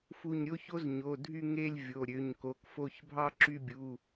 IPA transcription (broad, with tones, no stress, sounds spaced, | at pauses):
f u˦˨ ɲ ɾʲ o˥ ç o˥ z ɲ o˩˧˩ dʱ y˦˨ ŋ e˦˨ lʲ vʲ o˩˧˩ ɾʲ ø˩˧˩ ɲ k o˩˧˩ k f o˦˨ ç bʱ ɑ˥ ǁ y˦˨ bʲ u˩˧˩